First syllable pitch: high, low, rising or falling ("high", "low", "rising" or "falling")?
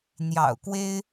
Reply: low